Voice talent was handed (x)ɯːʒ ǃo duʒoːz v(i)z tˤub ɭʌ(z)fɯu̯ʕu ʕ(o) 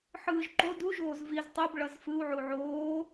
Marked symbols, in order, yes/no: no, yes, yes, no

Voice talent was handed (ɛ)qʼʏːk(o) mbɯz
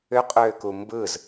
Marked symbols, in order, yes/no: no, no

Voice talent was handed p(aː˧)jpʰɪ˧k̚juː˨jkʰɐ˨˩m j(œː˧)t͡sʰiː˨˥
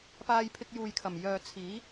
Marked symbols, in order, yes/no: yes, no

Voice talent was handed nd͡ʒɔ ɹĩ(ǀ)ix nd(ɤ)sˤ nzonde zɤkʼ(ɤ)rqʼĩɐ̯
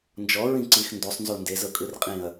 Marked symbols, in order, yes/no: yes, no, no

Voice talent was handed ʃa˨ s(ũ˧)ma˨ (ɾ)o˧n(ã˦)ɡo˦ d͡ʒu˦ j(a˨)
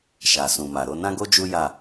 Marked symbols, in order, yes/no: no, yes, yes, no

